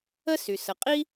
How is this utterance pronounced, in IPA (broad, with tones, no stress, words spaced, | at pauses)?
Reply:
ə˥sy˩ sə˩qʼi˥